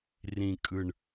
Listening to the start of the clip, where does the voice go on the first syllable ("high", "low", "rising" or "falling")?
low